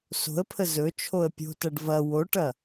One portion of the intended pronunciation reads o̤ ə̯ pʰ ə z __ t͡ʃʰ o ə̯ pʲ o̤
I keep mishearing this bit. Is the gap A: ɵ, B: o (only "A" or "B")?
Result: A